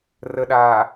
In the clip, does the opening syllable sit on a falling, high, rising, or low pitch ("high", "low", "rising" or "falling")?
low